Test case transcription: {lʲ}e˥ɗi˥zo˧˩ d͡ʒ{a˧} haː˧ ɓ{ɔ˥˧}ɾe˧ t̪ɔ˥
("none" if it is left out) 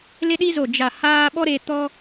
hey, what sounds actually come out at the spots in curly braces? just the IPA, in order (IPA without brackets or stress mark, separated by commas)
l, a˧˩, ɔ˥